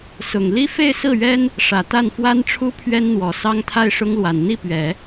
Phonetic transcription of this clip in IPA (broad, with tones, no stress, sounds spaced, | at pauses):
s ʊ˨˩ ŋ l i˥ f e˥˧ ɪ̯ s ɹ̩˥˩ ɥ ɛ˥ n | ʂ ä˨˩ t̪ a˥˩ n f w a˥ n ʈ͡ʂʰ u˥ pʰ ɥ ɛ˥ n n̪ w ɔ˨˩ s ɑ˥ ŋ t̪ʰ a˥˩ ɪ̯ ʂ ʊ˥ ŋ l w a˨˩ n n̪ i˥˩ p ɥ ɛ˨˩˦